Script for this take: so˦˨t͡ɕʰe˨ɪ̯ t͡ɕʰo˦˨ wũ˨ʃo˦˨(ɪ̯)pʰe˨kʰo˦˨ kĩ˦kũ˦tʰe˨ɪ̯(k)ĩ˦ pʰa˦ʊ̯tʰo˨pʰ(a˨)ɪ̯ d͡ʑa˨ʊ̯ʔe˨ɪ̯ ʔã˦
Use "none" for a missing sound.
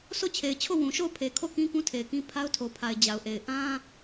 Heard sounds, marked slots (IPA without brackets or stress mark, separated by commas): ʊ̯, k, a˨